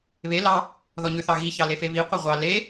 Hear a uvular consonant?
yes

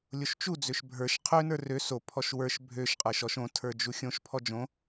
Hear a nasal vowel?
yes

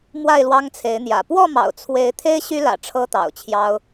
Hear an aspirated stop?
yes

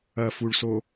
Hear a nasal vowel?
no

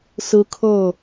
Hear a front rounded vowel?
no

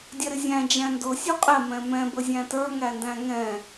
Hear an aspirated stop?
no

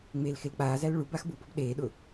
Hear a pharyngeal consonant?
no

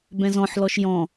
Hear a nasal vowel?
yes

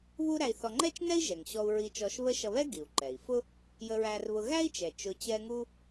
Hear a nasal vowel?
no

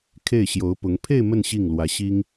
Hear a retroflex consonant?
no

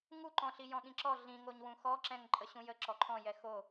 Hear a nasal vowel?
yes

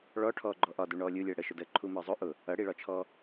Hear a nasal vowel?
no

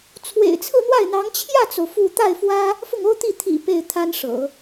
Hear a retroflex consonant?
yes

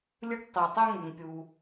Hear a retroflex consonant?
yes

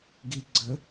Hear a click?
yes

